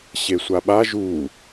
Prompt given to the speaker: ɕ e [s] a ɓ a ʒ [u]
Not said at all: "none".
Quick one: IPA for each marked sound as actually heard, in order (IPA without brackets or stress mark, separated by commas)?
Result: sʷ, u